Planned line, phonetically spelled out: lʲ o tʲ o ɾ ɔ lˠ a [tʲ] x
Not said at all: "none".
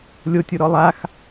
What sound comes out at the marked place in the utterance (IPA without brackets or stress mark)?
none